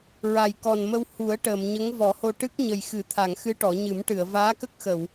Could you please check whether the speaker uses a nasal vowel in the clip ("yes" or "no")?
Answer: no